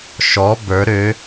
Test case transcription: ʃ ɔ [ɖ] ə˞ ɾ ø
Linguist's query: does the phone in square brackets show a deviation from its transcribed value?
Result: yes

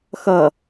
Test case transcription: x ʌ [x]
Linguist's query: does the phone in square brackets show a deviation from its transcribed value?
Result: yes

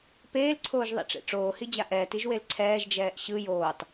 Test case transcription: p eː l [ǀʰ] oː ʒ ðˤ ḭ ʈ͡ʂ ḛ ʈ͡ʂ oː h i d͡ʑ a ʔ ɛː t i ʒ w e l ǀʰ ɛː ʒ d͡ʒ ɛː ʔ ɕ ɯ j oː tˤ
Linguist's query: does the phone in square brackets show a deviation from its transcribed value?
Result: no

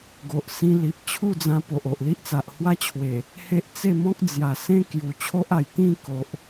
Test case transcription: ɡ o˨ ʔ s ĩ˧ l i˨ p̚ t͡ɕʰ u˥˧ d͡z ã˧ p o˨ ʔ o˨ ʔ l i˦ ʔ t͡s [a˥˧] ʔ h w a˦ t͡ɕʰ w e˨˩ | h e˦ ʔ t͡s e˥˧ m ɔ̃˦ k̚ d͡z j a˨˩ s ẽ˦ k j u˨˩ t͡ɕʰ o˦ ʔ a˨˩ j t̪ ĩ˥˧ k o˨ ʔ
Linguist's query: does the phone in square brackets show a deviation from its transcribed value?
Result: yes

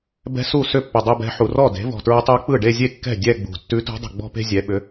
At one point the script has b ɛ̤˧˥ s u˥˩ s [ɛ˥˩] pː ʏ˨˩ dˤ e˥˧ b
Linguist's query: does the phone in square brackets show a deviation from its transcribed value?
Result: yes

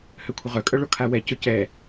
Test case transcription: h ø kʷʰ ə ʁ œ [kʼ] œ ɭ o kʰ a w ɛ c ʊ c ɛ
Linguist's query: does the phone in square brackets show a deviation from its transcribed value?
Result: no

